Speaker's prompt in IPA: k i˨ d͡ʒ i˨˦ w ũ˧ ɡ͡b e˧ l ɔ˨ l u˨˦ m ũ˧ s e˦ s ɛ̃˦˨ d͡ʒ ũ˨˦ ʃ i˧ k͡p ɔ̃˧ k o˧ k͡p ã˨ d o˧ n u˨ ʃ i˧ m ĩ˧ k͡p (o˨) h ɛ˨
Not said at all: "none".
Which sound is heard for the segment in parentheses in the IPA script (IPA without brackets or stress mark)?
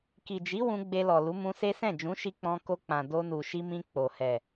o˨